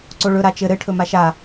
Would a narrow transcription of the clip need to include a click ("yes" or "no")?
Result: yes